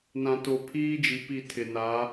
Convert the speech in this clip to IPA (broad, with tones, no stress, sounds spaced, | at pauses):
n ã˨ t o˨ pʰ iː˦ d͡ʒ i˨ p i˦˨ tʰ ɪ˨ n a˨˦